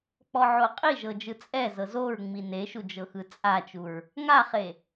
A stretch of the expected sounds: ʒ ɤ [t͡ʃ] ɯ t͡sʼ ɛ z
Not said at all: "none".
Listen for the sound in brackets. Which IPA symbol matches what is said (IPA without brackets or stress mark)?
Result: d͡ʒ